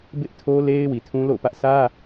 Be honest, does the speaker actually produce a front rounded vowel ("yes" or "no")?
no